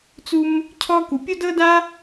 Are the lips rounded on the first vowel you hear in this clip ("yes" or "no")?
yes